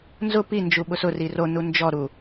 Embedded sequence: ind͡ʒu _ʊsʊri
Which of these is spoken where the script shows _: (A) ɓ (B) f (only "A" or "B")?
A